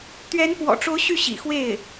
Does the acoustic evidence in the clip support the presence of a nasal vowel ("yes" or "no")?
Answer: no